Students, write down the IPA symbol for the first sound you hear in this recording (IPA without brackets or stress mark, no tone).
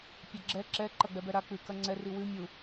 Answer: pʲ